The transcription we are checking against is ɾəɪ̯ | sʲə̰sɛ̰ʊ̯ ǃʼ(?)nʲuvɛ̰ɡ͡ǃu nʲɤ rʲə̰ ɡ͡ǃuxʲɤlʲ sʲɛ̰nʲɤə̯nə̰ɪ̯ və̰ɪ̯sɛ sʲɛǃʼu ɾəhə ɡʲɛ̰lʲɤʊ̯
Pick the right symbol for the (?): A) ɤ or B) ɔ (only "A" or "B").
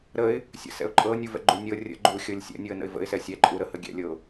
A